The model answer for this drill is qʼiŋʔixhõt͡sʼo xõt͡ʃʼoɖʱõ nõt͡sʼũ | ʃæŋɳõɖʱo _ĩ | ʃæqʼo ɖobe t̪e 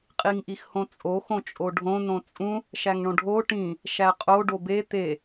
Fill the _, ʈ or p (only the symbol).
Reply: ʈ